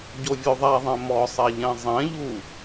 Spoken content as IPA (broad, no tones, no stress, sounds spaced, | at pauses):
ɟ o vʲ o ðˤ a ðˤ ɛ̃ m ɔ sˤ ɛ ʎ ɛ̃ zˤ ɛ̃ ʎ u